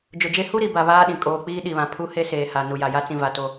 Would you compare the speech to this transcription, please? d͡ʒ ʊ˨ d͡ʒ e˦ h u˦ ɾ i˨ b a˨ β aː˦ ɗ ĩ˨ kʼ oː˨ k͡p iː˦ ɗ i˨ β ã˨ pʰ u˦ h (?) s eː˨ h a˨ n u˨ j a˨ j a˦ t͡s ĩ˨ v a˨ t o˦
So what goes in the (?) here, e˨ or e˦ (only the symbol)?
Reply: e˦